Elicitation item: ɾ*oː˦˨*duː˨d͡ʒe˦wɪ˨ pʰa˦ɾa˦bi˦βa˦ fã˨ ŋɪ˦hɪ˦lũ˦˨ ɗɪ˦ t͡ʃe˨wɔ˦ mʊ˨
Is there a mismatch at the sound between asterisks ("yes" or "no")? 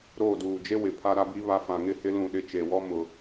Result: no